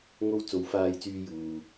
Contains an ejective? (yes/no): no